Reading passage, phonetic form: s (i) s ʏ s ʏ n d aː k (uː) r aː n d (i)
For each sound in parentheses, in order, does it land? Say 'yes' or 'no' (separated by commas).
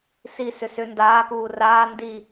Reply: yes, yes, yes